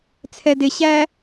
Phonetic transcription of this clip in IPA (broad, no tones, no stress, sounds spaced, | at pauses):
t͡sʰ ɛ d ɪ ɕ æ